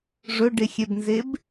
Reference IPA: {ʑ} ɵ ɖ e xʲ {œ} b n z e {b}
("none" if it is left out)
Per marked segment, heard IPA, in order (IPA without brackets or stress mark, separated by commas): ʐ, ɛ, b